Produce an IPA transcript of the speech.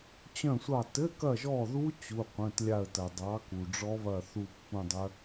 t͡ɕœ̃˦˨sʷɑ˦˨ tɘ˧˥˧kɐ˦˨ʒɔ˦˨ðu˦˥ t͡ɕu˩˧˩ qʷœ̃˩˧˩tlʲa˦˨ə̯tɐ˩ dˤɑ˨˥ku˩ɖ͡ʐɔ˦˥βɐ˦˨ θu˦˨pːũ˦˨dˤœ˦˥

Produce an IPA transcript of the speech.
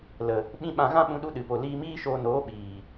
lə˨ | ɓĩ˦ ɓã˧ ɣã˦ɓũ˧ ɗu˦ɗɨ˨po˨ liː˧miː˦ʃoː˧noː˨˦ ɓiː˨

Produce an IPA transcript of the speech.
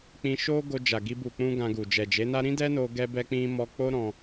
k͡pĩ˧ʃo˦ ɡo˧d͡ʒa˨ɡi˧ bu˨k͡pũ˧ ɡã˧ɡu˨ d͡ʒɛ˨d͡ʒe˨˦na˦ ɾĩ˦dɛ˦no˧ ɡɛ˧bɛ˧k͡pĩ˧ mɔ˧k͡po˦ɾɔ̃˧

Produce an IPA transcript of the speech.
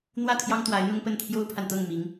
n̪wä˥˩t̪ʰjɑ˥ŋ t̪wa˧˥ɪ̯n̪ʊ˥ŋpə˥˩n t̪ʰjo˥ʊ̯pʰa˨nt̪ɤ˥˩ŋ mi˧˥ŋ

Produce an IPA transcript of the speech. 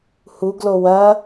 huɡlo wɐ

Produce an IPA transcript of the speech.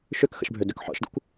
ʃøkxə̰ʃbʱødøk ħɔ̰ʃdə̰kʷ

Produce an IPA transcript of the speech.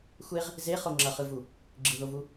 xʷeʁ | zeχo ŋ͡ǁʌχɯvu | ɡ͡ǁɯðovu

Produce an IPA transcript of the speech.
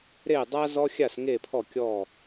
ɾe˥˧dˤa˥zɔ˥xʲa˥˧s ŋe˥˧pʰɔ˥˧kʲɔ˥˧

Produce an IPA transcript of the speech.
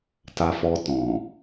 ta˧fɔ˧ tɔ̃˨

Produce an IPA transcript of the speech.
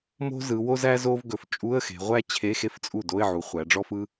mo̤˥zɯ˩˧wo˥zæ˥ zo˥v ɡɵ˩˧f t͡ʃʼu˧˥˧ə̯xe̤˩˧ ʁʷæ˥ t͡ɕʰe˧˥˧xe˥ft͡sʼu˥˩ do˧˥˧ɪ̯ʕu˩˧χʷæ˩˧ɖ͡ʐɔ˥f ɯ˥

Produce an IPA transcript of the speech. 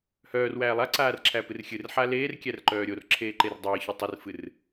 hœːrwæː lˠaǀaːr ǁʰæpɨrxʲɨrħa leːrkʲær ǃœːɾʲorǁʰeː ǃerdˤɨːçɨ tˤɨrfɨr

